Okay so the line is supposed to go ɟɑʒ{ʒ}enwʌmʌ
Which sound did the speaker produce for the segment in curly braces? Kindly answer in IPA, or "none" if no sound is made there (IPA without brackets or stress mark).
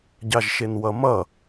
ʃ